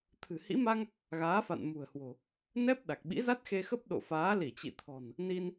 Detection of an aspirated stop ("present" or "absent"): present